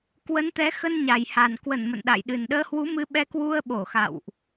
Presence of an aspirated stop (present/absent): absent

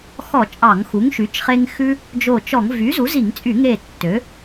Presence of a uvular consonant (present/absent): present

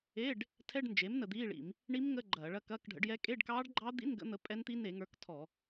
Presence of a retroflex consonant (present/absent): present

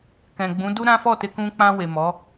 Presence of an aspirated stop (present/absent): absent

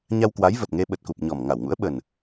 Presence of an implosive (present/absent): present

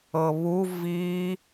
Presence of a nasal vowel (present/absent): absent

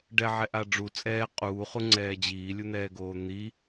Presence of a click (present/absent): present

